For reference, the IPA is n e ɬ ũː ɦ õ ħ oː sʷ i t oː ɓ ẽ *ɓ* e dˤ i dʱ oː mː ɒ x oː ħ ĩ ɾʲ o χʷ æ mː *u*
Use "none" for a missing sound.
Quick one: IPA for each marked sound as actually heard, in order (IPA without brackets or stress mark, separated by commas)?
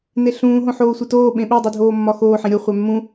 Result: ɓ, ũ